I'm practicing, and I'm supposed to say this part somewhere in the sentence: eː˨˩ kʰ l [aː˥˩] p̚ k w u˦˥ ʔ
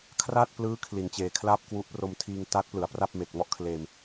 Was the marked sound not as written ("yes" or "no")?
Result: no